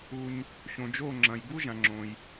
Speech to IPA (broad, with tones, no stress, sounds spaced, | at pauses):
u˩ ɲ | ɕ õ˩ d͡ʒ o˥˩ ŋ͡ǁ ɐ̃˩ j ɡ u˥ ʒ ã˩ ŋ͡ǁ õ˩ j